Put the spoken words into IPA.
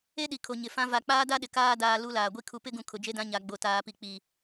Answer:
e˦ɗi˨kʰo˨ ɲɪ˨fã˦ va˨k͡paː˦da˦ɗɪ˨ kaː˦daː˨ lu˦laː˨ɡʷi˦ kʰu˨pɪ˦ɡũ˨ kʰʊ˨d͡ʒe˦dã˦ ɲa˨ɡ͡bo˨ taː˨pi˨k͡pi˨

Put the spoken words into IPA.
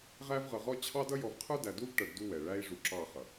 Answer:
ʁæ˦vʁʌ˨ ʁɔ˦ t͡ɕʰɑ˦dʌ˦jɔ˨v qʰə˞˦dæ˨du˦vʈʌ˨ɖ du˦ wɛ˨ ɭæ˦i̯ʐu˨ǁɑ˦˨ χʌ˨

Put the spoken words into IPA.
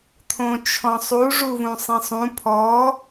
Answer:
t̪ʰõt͡ʃʰɔ̃sˤu ʐuvũsˤẽsˤũ pʰɔ

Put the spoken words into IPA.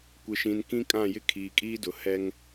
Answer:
kʷɪ˨ʃĩ˨n kĩ˦kʼã˦˨jɪ˦ kʰiː˨kʼiː˦dʊ˨ hɛ˦ŋ

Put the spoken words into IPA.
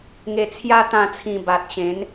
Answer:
ŋe˧t͡sʰja˦ t̪ã˥˧t͡sʰĩ˧ba˨t̚ ɕẽ˨˦n

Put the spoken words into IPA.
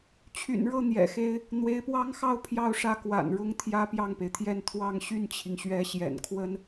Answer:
t͡ɕʰy̰˨˩nɻɤ˥˩ n̪jɛ̰˨˩xe˥ɪ̯ | n̪we˧˥ɪ̯pwɑ˥ŋxɑ˥ʊ̯ pʰjɑ˥ʊ̯ʂä˥˩ kwa̰˨˩n ɻʊ˥ŋt̪ʰjä˥ pjɑ˥˩ŋpe˩ɪ̯t̪ʰjɛ˥˧n t̪ʰwɑ˥˧ŋ ɕy˥˩nt͡ɕʰi˩ŋɕɥɛ˧˥ ɕjɛ̰˨˩nkʰwə˥n

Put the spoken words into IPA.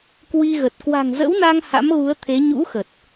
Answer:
kwi˧ɣə˨˩t̚ kwa̤˨˩ŋzə̰˧˥wna˧ŋ ha̰˧˥mɣu˨˦ə̯t̪ʰe˨˦ ɲṵ˧˥xə˨˩t̚

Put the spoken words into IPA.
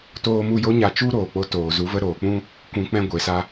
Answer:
toː˧mu˧jo˦ ɲa˧t͡ʃu˦ɾoː˨ k͡po˦toː˨ zu˨˦və˧ɾoː˨k͡pũ˦ | kʷũ˨˦k͡pɛ̃˧ ɡʷe˨sa˦

